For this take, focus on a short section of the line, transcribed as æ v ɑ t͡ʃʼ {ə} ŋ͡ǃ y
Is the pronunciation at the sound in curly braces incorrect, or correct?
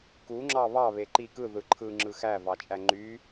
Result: incorrect